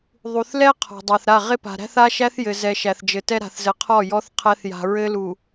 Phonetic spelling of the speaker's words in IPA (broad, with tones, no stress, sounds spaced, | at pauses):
ðˤ u˨ θ l ɛ˦ qʰ ɔ̤˨ dˤ a˨ θ ɾ a˦˨ ʁ ɪ˦ p a̤˨ ɾ æ̤˦ θ a˦ ʃ æ˦ θ j ɘ˨ z ɛ˨ ʃ æ˨ θ d͡ʒ ɘ˨ t ɛ˦ ɾ a̤˨ θ z ɘ˨ qʰ ɔ˦˨ j ɔ˦ θ qʰ æ˦ θ j a̤˨ ɹ ɘ˦ l u˨